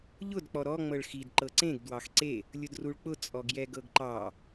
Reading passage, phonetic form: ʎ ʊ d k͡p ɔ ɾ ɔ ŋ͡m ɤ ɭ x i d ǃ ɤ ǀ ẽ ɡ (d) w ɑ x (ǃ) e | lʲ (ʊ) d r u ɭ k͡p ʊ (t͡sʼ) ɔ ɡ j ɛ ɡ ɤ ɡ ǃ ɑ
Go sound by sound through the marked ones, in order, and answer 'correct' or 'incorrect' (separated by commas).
correct, incorrect, correct, correct